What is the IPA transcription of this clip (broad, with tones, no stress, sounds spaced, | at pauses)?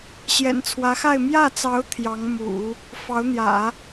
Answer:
ɕ j ɛ̰˨˩ n t͡sʰ w ä˧˥ x a˥˧ ɪ̯ m j ä˥˩ t͡s ɑ˧˥ ʊ̯ t̪ʰ j ɑ˧˥ ŋ m ṵ˨˩˦ | f ɑ˧˥ ʊ̯ n̪ j ä̰˨˩˦